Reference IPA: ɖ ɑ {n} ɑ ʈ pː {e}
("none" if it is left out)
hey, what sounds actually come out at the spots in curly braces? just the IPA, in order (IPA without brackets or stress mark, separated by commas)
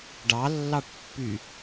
lː, y